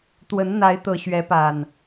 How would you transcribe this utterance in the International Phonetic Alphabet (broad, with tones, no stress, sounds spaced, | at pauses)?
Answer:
t̪ w ə˨˦ n n̪ a˨˦ ɪ̯ t̪ ɤ˨˩ ɕ ɥ ɛ˨˦ p a˨˩ n